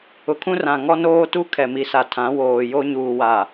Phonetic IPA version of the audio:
ʊ˨kʰũ˦rã˨ ŋɔ˦noː˦tu˦ kʰɛ˨mi˨˦sa˨ tʰã˨˦woː˨jo˦ ɲuː˨wa˨

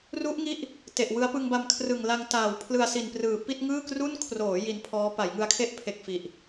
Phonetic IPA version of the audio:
ru˦˥ʔŋi˦˥ʔ | te˨˩ʔwɯ˦˥a̯ pɯ˧ŋba˧mkʰrɯ˨˩ŋ la˧ŋtaː˨˩w pʰlɯ˧a̯si˨˩nprɯː˨˩ pi˥˩t̚ ŋɯː˥˩kru˥˩n kʰroː˩˦ ji˧npʰɔː˦˥ pa˩˦jŋɯ˧a̯kʰe˥˩ʔ pʰe˨˩k̚ fi˨˩ʔ

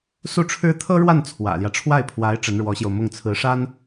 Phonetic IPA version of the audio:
su˥˩ʈ͡ʂʰɻ̩˥ t̪ʰɤ˥ɻwa˥˩n t͡sʰwä̰˨˩ljä˦ʈ͡ʂʰwa˥˩ɪ̯pʰwa˧˥ɪ̯ ʈ͡ʂə˧˥nɻwɔ˧˥ɕjo˧ʊ̯ mʊ˥˩ŋt͡sʰɹ̩˧˥ʂa˥n

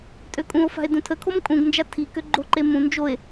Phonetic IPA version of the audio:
tʼøkʼũo̯fa̤e̯ dũtʰəkʰom kʼũɡnd͡ʒa tʰikø ɡ͡ǃoǃe mũ nd͡ʒoe̯

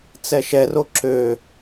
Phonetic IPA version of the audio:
t͡sɛʃɛro ǁø

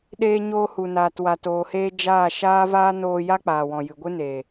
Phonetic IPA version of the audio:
ɗeː˧ ɲoː˧hu˨naː˨t wa˨toː˨heː˧ d͡ʒaː˦˨ ʃaː˦vaː˦ noː˧ ja˦k͡paː˨wɔ̃˨ jɨ˨ɡʷɨ˦neː˨

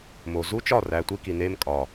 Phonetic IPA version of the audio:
mo˨zu˦ t͡ʃɒ˦˨ræ˨tʷi˧ki˨ ne˧m kʼɒ˨

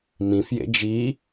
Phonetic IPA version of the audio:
mĩfjḛ d͡ʒi

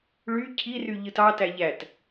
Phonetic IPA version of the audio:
ɭy cʰiry ʎɯtɑtæ ʎæt

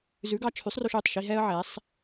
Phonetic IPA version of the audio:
zʉ˨˥ɡɑ˧t͡ʃʰʉ˨˥sˤro˧ʃ ʉ˩˧˩tˤʃi˧ ɦɛ˧ə̯ʕɛ˩˧sˤ

